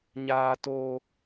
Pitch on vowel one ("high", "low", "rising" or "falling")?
low